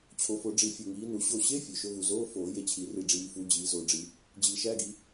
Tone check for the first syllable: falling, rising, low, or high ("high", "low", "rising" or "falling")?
rising